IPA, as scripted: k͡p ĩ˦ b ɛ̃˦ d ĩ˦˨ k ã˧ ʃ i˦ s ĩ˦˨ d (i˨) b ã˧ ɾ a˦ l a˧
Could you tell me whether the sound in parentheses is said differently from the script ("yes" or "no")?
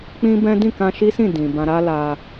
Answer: yes